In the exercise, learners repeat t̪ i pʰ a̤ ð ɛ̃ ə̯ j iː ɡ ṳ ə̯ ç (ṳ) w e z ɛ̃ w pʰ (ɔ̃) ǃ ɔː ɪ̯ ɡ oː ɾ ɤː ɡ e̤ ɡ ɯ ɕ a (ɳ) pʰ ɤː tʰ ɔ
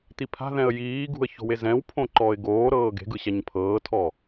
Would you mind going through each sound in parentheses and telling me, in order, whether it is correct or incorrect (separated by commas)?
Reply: incorrect, incorrect, incorrect